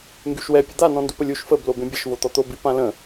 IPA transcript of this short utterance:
ŋ ɡ y ʃ w ɛ pʲ ə d̪ a n ɔ̃ n d u p ə lʲ u ʃ f ə b l o b ẽ bʲ ə ʃ v o t̪ ɔ t̪ o b i p ã l ə̃

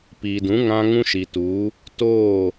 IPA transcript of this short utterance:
p iː˨ d ũ˨˦ ŋ ã˦ ŋ ũ˦ ʃ i˨ t uː˨˦ | t oː˦˨

